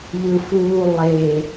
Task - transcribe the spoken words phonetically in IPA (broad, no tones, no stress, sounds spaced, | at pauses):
ʎ ɯ f uː lˠ e